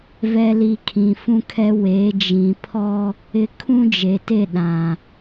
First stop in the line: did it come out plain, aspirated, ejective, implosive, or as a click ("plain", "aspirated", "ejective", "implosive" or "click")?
aspirated